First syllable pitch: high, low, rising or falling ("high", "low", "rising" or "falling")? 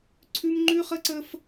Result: high